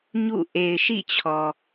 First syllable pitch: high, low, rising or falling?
falling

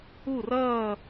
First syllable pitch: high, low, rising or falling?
falling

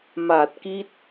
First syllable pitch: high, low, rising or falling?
low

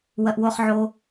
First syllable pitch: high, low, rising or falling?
low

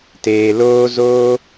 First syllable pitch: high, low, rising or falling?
low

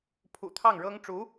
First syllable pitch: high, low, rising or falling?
low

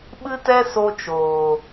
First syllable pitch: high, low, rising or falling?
high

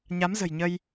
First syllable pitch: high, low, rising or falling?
rising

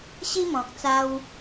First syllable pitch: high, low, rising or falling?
high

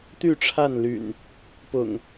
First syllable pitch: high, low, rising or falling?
falling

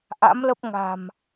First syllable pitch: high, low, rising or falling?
rising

